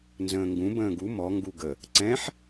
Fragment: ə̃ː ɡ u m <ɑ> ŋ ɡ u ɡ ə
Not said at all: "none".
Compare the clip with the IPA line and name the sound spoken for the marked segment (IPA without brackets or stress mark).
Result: ɔ